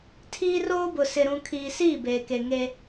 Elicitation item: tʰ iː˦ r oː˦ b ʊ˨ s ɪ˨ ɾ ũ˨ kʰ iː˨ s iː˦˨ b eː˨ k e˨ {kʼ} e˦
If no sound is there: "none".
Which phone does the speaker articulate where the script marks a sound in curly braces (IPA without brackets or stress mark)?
ŋ